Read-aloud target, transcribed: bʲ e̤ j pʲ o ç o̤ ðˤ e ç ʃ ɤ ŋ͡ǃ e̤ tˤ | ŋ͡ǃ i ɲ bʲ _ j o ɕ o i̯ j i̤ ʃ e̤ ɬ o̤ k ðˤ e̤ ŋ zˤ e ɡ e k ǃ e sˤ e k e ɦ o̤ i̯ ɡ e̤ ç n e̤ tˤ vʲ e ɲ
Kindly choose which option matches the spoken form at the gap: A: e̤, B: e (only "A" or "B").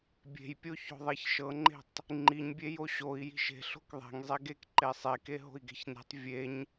B